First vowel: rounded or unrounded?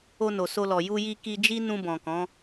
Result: rounded